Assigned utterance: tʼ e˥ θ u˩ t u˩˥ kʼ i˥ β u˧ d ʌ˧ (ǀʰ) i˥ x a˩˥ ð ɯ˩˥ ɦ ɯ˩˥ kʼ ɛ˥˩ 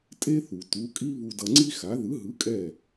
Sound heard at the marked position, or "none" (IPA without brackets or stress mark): ŋ͡ǀ